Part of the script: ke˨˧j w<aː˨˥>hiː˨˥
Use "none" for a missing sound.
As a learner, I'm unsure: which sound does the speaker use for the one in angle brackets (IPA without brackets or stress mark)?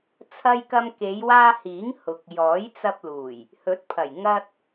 aː˧